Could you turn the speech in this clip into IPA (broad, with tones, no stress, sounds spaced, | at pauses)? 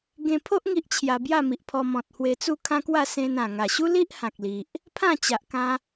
ɡ ẽ˧ pʰ o˦ ʔ ŋ i˦ ʔ t͡ɕʰ j a˧ b j a˥˧ m i˨ ʔ pʰ ɔ˧ m ɔ̃˨ t̚ h w e˧ t͡s u˥˧ kʰ ã˦ k w a˥˧ s ẽ˧ n ã˨˩ ŋ a˨˩ ɕ u˦ l i˦ ʔ h ã˨ k̚ l i˨ ʔ | pʰ ã˥˧ t͡ɕ a˨ ʔ k ã˧